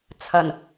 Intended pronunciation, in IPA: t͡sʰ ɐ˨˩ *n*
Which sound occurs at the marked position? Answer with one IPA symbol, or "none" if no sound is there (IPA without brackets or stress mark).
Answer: n